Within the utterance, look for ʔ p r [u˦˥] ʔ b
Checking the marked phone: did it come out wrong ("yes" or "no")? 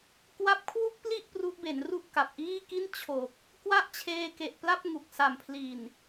no